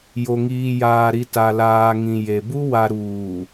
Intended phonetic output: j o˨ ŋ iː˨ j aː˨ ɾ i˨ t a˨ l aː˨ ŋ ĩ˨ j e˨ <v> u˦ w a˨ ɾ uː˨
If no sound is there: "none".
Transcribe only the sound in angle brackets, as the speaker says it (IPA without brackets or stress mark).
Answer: b